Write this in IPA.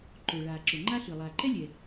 ǃ ʊː˩ ɭ aː˩ ǁ ʊ˩ ŋ͡ǃ a˥ ɬ ɨ˩ lˠ aː˩ ǃ ɛ˥ lʲ ɛ˩

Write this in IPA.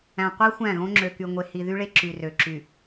æ̃˨ qʷ e˦ xʷ æ̃˦˨ ɣ õ˦ ŋ͡ǁ ø˨ k y˨ ŋʷ e˨ h i˨ ð y˦ ɭ e˦ ǁ y˨ r ø˨ ǁ y˨

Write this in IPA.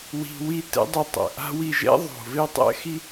w i̤˨ w i˧ t ɛ̰˦ dˤ e˧ tˤ ɛ̰˨ ʔ a̤˦ w i˧ ʒ ɛ̰˦ ðˤ o̤˨ v e˦ tˤ ɛ̰˦ x i˦

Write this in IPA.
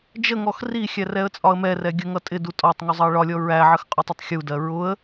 d͡ʒ ə ŋ ɔ x r i xʲ æ r ɛ ə̯ t͡sʼ ɒ ə̯ m ɛ r ɛ ɡʲ ə ŋ ʌ tʼ ɪ d u tʼ ɒ tˤ ŋ u zˤ ɑ ə̯ ɭ ɒ lʲ ɔ ɹ æ ʕ ə x qʼ ɔ tˤ ə tˤ xʲ u d ɜ ɹ ʊ ə̯

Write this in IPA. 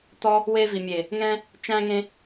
t ɔ˦ | w e˧ v i˨ mʲ e˨ | ŋ ɛ̃˧ | t͡ʃ æ̃˧ ŋ ẽ˧

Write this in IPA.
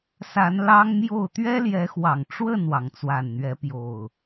s a˨˦ n l ɑ˦ ŋ m j o˥˨ ʊ̯ t̪ ɥ ɛ˦ l j ɛ˨˦ x w ɑ˨˩ ŋ ʈ͡ʂ w ə˥˨ n w ɑ˩ ŋ t͡s w a˨˩ n n̪ ɥ ɛ˨˦ p j o˨˩ ʊ̯

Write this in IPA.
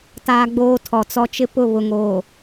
t aː˦ ɡ͡b oː˦ tʰ ɔ˨ t͡s ɔ˦ t͡ʃ ɪ˦ p ʊ˦˨ β ʊ˨ ŋ oː˨

